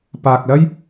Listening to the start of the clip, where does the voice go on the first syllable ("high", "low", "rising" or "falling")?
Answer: low